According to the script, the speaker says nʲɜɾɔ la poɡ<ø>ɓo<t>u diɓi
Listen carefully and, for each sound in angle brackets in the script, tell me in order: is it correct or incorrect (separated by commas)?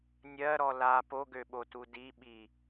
correct, correct